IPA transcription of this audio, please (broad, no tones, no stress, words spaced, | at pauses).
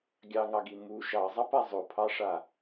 ɡʲɑŋɑɡi mu ʃɑzˤɑpa zˤopʰɑʂa